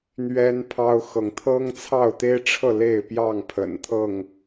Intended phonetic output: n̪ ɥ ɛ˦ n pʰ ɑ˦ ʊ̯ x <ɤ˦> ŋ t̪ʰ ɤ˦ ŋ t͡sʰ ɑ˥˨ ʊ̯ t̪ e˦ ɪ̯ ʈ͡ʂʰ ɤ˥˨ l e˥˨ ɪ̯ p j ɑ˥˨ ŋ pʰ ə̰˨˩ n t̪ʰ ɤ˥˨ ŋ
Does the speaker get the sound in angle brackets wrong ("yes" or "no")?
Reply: yes